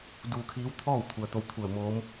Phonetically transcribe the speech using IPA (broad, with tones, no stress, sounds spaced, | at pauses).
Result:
d uː˧ kʰ iː˧˥ w t̪ʰ ɔː˥˨ w t̪ʰ u˩ ə̯ t̪ o˧ w t̪ʰ u˧˩ ə̯ m oː˧˥ m